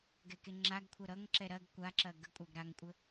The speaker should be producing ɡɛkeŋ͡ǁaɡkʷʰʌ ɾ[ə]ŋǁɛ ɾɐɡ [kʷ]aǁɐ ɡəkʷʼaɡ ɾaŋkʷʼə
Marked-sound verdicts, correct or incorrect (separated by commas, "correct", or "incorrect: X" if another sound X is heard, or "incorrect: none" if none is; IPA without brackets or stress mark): incorrect: ʌ, correct